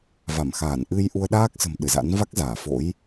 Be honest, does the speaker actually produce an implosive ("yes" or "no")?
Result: yes